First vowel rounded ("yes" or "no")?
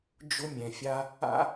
yes